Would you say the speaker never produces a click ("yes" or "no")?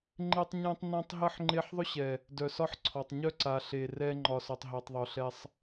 no